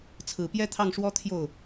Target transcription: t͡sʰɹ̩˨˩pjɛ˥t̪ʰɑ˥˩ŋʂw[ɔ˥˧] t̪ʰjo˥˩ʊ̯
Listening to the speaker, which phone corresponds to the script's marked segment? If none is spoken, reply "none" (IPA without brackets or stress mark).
ɔ˥